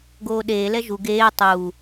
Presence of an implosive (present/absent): present